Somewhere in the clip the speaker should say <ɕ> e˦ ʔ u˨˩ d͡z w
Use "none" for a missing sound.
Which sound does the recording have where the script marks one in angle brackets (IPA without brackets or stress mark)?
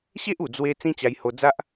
ɕ